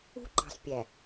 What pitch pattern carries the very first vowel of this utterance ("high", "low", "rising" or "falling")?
high